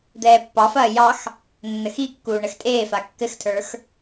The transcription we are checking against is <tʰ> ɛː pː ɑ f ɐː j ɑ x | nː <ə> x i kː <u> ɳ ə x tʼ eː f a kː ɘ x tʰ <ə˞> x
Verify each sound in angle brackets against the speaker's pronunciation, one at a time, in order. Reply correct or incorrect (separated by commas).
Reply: incorrect, correct, incorrect, correct